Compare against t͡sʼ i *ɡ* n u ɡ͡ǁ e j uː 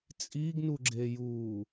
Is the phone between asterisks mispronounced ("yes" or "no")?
no